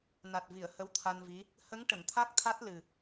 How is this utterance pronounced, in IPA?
n a˨˩ t̚ v i˨˩˨ ə̯ h ə˧˥ w t̪ʰ a˧ n v i˧˥ | h ə˧˥ ŋ ʈ ə˨˩˨ ŋ t̪ʰ a˦˥ k̚ t̪ʰ a˦˥ t̚ l ɨ˨˩

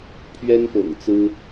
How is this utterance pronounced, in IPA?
pʰ ɥ ɛ˥ n p ɤ̰˨˩ ŋ t͡s ɹ̩˥

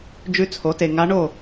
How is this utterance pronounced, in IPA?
d͡ʒ ʉ˧˥ t͡sʰ o˩˥ t e˨ ŋ a˧˥ ɳ o˥˨

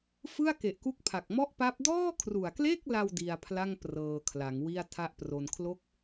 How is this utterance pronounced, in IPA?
f ɯ˥˩ a̯ k e˨˩ ʔ k u˦˥ k̚ pʰ a˨˩ k̚ m ɔ˥˩ ʔ p a˦˥ p̚ d ɔː˥˩ kʰ r u˨˩ a̯ k l e˥˩ k̚ l a˧ w d i˧ a̯ pʰ l a˥˩ ŋ p r ɤː˧ kʰ l a˩˦ ŋ w i˥˩ a̯ tʰ a˥˩ ʔ p r o˧ n kʰ l o˦˥ k̚

